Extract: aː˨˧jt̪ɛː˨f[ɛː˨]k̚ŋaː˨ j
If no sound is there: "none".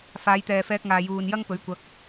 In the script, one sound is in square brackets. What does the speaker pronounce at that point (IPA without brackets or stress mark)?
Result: ɛː˧